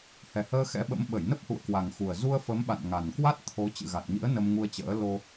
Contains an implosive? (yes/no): yes